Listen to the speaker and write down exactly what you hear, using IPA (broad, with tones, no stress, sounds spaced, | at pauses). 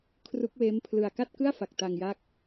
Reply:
kʰ r u˦˥ k̚ w eː˦˥ m pʰ l ɯ˧ a̯ k a˥˩ t̚ k ɯ˥˩ a̯ f a˨˩ k̚ t a˧ ŋ j a˦˥ k̚